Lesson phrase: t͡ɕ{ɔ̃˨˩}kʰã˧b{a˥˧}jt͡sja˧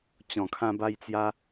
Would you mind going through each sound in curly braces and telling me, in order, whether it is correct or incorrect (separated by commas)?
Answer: correct, incorrect